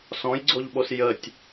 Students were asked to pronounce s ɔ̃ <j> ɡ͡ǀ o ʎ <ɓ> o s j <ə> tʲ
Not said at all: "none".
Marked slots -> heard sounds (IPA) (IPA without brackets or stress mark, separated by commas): j, ɓ, ə